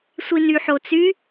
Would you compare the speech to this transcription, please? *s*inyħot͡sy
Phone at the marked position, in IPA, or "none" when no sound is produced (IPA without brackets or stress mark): sʷ